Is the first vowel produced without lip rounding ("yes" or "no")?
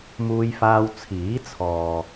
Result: no